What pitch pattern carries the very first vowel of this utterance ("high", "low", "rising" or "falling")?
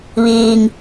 low